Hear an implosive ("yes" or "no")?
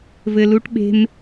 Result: yes